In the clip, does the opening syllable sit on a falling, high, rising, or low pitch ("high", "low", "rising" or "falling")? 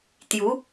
rising